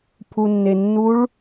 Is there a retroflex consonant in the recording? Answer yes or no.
yes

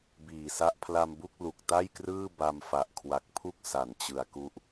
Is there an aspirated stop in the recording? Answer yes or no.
yes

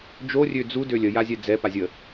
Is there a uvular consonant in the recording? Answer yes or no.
no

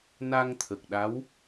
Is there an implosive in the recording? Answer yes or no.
yes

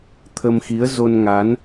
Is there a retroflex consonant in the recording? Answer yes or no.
no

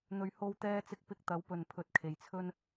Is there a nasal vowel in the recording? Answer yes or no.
no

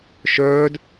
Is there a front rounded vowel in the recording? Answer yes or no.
yes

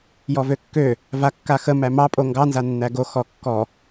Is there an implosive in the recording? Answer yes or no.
no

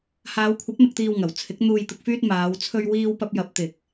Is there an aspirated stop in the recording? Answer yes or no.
yes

